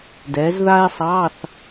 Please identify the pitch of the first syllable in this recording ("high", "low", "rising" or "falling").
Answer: rising